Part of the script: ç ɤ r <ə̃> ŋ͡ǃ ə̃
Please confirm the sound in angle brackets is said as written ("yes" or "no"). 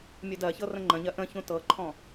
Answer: yes